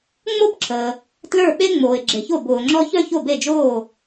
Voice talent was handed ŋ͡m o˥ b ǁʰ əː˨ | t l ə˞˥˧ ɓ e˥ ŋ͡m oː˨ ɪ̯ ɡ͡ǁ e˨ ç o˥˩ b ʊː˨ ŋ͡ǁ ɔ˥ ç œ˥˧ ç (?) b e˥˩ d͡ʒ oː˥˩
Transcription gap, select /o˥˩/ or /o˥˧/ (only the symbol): o˥˩